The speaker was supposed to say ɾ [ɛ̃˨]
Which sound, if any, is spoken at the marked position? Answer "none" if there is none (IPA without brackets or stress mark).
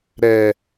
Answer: ɛ˨